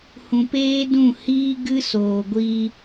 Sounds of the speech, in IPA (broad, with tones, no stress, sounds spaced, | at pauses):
h ũ˧ p eː˦ d ũ˦˨ h iː˦ ɡ ɨ˦ s oː˨ ɡʷ iː˧